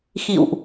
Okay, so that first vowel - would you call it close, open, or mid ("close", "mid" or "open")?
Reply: close